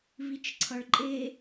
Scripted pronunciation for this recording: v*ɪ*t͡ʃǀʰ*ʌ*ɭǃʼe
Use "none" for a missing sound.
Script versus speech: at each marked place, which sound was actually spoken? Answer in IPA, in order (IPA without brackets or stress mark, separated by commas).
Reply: i, ʌ